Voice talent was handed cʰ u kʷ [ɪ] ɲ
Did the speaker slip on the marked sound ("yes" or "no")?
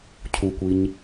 yes